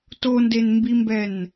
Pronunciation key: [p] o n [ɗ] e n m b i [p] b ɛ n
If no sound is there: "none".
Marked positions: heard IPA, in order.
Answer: t, d, m

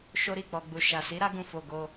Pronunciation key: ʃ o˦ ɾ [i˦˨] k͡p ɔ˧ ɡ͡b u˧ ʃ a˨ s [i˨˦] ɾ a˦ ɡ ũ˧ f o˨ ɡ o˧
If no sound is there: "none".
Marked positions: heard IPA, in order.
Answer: i˦˨, i˨˦

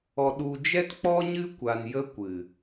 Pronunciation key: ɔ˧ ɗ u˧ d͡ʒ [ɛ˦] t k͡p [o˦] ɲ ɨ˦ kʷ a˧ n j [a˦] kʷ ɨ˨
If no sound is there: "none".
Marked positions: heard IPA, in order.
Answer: ɛ˦, ɔ˦, ə˦

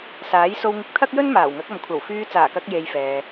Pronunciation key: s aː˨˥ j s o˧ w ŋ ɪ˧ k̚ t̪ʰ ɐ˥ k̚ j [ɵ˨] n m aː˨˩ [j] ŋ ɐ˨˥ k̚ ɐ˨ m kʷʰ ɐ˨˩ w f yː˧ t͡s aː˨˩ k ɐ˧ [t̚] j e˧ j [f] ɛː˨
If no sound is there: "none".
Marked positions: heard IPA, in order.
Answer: ɵ˥, w, k̚, f

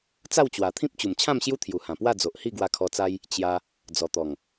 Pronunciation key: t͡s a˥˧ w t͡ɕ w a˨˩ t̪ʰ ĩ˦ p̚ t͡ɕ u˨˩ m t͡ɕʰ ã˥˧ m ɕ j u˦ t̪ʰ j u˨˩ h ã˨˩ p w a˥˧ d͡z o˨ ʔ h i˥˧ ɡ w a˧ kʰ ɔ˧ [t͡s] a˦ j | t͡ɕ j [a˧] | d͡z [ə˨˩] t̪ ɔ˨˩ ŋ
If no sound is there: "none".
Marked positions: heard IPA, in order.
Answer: t͡s, a˧, ɔ˨˩

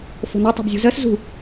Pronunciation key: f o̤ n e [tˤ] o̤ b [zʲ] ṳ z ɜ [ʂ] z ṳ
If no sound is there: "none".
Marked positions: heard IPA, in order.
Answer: tˤ, zʲ, s

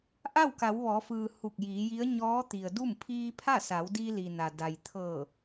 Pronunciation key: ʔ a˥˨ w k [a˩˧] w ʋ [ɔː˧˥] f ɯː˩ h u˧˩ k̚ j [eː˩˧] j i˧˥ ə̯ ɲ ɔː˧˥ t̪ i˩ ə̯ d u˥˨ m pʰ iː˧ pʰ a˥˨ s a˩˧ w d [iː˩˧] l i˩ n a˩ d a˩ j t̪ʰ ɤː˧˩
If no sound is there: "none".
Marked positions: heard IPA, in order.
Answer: a˩˧, ɔː˩˧, iː˩˧, iː˧

